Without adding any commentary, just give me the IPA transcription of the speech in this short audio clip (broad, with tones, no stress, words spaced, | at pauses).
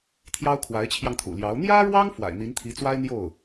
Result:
t̪ʰjɑ˥ʊ̯ kʰwa˧˥ɪ̯t͡ɕʰjɑ˧ŋt̪ʰṵ˨˩ljɑ˧˥ʊ̯ n̪jä˥ɻwɑ˥ŋ fwa̰˨˩ɪ̯n̪i˧˥nt̪ʰi˧˥t͡swa˥ɪ̯ n̪jo˥˩ʊ̯